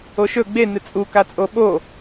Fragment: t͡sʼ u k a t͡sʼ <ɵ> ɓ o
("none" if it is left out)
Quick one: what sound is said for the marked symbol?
o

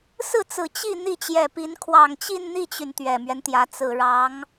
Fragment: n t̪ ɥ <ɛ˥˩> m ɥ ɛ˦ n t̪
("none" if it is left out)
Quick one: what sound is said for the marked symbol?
ɛ˨˩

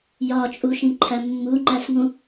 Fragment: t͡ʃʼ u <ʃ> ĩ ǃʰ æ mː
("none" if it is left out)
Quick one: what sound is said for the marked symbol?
ʃ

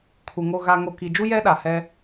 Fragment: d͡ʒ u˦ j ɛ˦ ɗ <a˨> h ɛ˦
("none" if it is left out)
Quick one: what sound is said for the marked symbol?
a˨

